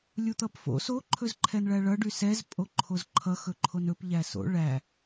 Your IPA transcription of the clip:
lʲ u t̪ ʌ p f o̰ s o ǃʰ ɵ z ǃʰ ɛ n ɭ æ ɭ ʌ ɖ y s ɛ z pʼ o ǃʰ o z ǃʰ ʌ x ɵ ǃʰ o n ɵ p ʎ æ s o̰ ɭ æ

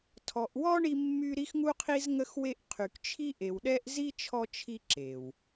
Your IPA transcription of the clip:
tʰ ɔ˨ ʔ w ɔ˦ ɳ i˧ mː y˧ ɾ i˦ x ŋ u˦ qʰ i˦ z ŋ ə˦ x w e˦ ʔ qʰ y˨ k t͡ʃʰ i˦ ʔ e˨ w ɗ ɛ˦ ʔ z i˦ t͡ʃʰ ɔ˧ t͡ʃʰ i˧ ǁ e˨ w

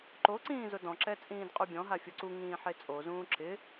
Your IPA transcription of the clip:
ǃ o ǀ ĩː z ʊ d ɔ̃ ǁ ɛ t͡sʼ ĩː d qʼ u bʲ ɔ̃ ɦ a fʲ o ǀ u ŋ ĩː ħ e t͡sʼ o z ũː ǁ ɪ

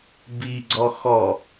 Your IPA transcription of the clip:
b i ɡ͡ǀ ɔ x ɔ

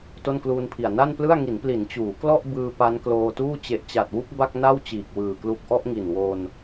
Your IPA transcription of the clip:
t o˥˩ n k l uː˧ n pʰ i˨˩ a̯ n a˥˩ n p l ɯ˥˩ a̯ ŋ i˩˦ n p l i˩˦ n t͡ɕ uː˩˦ k l ɔ˥˩ ʔ b ɯː˧ p a˦˥ n k l oː˧ t uː˥˩ t͡ɕ e˨˩ ʔ t͡ɕ a˨˩ t̚ w u˦˥ k̚ b a˥˩ k̚ n a˥˩ w t͡ɕ iː˨˩ k̚ w ɯː˨˩ k l u˦˥ k̚ ʔ ɔ˦˥ ʔ ŋ i˨˩ n w o˧ n

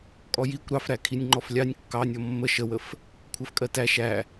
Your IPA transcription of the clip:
kʼ ɔ j i kʷ ɾ ɑ f ɾ æ kʰ i nʲ ŋ͡ǃ ɔ f lʲ ɑ nʲ kː ɑ nʲ ɔ mː ə ʃ ə w ə f | kʷʰ ɜ f kʼ ɜ t æ ʃ æ

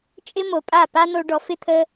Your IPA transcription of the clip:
t͡ʃʼ ɪ˦ m o˨ pʼ a˦˨ p a˦ n o˧ ɖ ɔ˨ f ɪ˦˨ t̪ʰ ə˧

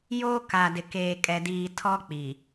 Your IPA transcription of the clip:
j oː˦ k a˨ d ɪ˨ k eː˨ kʼ ɛ˨ d iː˨ tʰ ɔ˦ k͡p i˨

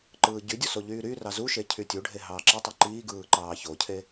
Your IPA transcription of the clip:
ǃ ɯː ɟ y dʲ u s o ʎ yː ɾ y r ɑ z u ʃ e cʰ y tʲ u ɖʱ e ɦ ɑː ǁ i tˤ o ǃ iː ɡ ɯː ǃ ɑː ç o cʰ e

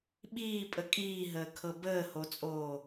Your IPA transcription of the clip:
ɓ iː pʼ ə kʼ iː ɦ əː kʰ ɤ b əː h o t͡sʼ oː

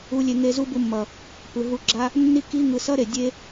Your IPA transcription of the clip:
u˧ lʲ e˧ ŋ e˧ z u˦ b u˧ mː ʌ˨ | p ɯ˨ ɦ u˧ ɡ͡ǁ a˦ | nː i˦ k i˦ ŋ ɯ˧ s ʌ˦ ɾ e˨ dʲ e˦

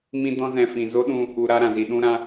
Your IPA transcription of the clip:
m ĩ˦ d ɔ̃˦ z ɛ̃˧ f ĩ˨ z o˦ ɗ ũ˧ | u˧ ɾ a˦ ɾ ã˨ z i˨ ɗ ũ˧ ɾ ã˧

